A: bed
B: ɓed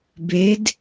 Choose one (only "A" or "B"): A